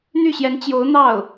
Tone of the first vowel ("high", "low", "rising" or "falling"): falling